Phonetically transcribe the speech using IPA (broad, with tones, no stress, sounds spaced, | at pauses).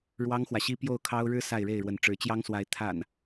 ɻ w ɑ˦ ŋ x w ä˨ ɕ i˦ p j o˥˨ ʊ̯ kʰ ɑ˦ ʊ̯ ɻ ɻ̩˦ s a˥˨ ɪ̯ ɻ e˥˨ ɪ̯ ɻ w ə˨˦ n ʈ͡ʂ ɻ̩˨˦ t͡ɕ j ɑ˦ ŋ s w a˨˦ ɪ̯ t̪ʰ a̰˨˩ n